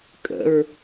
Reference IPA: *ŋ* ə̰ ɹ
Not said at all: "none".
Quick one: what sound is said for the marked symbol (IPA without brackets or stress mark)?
kʼ